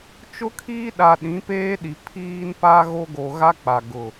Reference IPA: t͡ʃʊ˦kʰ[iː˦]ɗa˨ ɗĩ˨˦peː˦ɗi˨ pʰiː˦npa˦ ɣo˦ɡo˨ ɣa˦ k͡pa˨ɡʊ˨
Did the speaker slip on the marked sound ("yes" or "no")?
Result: no